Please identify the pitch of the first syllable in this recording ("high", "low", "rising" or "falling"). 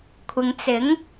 low